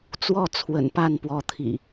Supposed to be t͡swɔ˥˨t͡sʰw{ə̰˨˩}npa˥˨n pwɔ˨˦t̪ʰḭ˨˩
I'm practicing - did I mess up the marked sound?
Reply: no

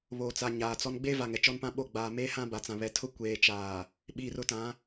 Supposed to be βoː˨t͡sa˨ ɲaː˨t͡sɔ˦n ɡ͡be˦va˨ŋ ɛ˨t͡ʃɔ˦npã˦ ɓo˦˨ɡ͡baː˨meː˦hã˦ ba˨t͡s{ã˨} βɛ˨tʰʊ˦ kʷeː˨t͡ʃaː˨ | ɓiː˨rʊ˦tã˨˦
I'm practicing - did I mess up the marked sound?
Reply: no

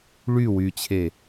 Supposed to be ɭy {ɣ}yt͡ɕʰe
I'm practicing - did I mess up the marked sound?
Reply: yes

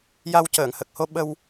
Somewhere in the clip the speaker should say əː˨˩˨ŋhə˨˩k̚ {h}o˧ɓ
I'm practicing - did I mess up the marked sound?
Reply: no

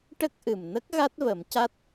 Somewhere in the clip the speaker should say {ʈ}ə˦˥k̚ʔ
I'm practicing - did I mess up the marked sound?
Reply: no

